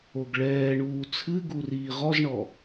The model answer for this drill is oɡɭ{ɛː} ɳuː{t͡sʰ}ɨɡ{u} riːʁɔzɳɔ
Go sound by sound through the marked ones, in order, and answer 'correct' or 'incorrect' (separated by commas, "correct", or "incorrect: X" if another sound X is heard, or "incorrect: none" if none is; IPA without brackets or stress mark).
correct, correct, correct